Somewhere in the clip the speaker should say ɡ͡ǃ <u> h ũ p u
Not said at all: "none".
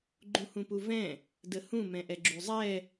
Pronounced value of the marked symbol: ũ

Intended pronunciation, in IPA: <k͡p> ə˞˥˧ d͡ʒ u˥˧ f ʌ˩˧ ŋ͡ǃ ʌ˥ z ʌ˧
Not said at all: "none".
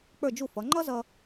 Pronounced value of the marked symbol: k͡p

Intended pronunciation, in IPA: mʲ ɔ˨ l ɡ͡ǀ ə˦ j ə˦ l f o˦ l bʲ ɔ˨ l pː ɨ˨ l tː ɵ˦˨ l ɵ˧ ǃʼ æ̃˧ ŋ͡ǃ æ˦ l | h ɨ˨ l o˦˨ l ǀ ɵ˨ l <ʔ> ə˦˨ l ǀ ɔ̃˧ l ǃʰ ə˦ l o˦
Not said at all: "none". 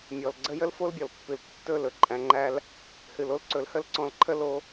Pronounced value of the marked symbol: h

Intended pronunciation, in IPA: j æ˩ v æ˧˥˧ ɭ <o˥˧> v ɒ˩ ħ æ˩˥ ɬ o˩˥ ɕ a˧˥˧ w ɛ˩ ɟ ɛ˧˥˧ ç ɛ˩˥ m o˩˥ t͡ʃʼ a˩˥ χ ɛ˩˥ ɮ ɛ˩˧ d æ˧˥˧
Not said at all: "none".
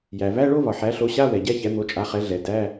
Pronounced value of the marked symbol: o˥˧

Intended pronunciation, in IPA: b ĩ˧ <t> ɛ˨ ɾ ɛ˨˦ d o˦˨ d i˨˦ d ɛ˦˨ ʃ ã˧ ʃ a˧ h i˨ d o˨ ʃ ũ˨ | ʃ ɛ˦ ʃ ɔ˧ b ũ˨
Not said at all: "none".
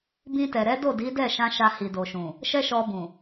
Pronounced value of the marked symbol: t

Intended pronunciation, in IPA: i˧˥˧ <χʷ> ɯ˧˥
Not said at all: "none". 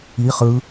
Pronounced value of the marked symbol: χ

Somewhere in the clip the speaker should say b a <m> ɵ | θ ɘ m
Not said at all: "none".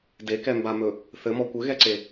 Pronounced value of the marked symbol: m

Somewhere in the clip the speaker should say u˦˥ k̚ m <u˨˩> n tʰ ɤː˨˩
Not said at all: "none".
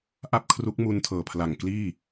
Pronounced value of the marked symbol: u˧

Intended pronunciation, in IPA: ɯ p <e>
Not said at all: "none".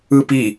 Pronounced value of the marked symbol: i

